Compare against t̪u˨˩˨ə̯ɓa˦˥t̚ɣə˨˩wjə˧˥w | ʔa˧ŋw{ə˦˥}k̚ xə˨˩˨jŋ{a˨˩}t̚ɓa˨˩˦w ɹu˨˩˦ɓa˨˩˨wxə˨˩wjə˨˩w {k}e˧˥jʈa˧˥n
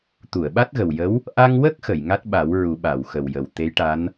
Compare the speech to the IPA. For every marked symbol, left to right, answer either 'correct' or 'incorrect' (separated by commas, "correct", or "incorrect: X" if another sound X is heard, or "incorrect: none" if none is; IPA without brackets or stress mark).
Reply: correct, incorrect: a˦˥, incorrect: t̪